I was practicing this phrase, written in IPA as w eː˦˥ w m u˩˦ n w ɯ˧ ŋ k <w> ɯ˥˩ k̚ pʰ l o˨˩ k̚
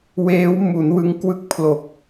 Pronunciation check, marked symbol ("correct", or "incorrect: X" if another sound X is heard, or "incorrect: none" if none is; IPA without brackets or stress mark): correct